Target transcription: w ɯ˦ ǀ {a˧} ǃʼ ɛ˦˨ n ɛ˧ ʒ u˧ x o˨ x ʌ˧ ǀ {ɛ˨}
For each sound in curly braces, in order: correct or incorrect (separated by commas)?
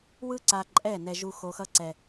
correct, correct